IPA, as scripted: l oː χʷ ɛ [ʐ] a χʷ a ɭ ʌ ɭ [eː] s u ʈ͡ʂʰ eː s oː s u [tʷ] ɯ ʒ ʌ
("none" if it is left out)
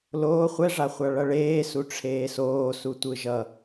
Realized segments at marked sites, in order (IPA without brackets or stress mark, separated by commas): ʐ, eː, tʷ